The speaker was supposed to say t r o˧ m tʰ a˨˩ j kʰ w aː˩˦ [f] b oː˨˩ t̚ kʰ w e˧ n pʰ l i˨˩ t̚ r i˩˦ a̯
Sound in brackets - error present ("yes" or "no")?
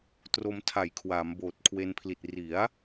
yes